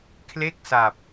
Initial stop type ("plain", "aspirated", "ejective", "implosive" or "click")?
aspirated